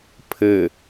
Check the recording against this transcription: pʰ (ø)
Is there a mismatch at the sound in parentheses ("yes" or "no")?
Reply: yes